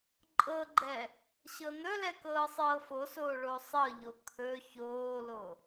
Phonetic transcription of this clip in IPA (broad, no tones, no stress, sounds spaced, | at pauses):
ǃʼ ɤ ɡ͡ǃ ɛ | ɕ ɤ n̪ ɵ l ɛ k ɤː sˤ ɤː f o s oː ɭ o sˤ ɤ ʎ o kʰ ɵ ç oː l o